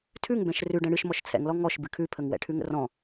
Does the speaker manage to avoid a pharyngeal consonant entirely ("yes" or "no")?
yes